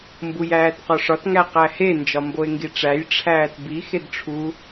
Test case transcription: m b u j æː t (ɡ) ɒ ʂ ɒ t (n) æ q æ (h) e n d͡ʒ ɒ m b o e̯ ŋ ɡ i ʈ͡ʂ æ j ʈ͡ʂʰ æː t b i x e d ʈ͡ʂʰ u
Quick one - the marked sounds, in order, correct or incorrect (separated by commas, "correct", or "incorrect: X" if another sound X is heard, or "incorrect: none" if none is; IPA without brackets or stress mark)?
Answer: incorrect: q, incorrect: ŋ, correct